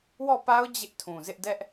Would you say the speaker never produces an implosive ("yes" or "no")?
yes